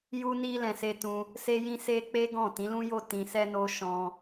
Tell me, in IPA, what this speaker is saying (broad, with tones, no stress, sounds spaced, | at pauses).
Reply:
j u˧ n i˧ l ɛ̃˧ s e˧ t ũ˧ | s e˧ j ĩ˧ s e˦ k͡p e˦ ɡ ɔ̃˦˨ t ĩ˨˦ l ũ˦ j o˦˨ t ĩ˧ s ɛ˦ n o˦ ʃ ɔ̃˧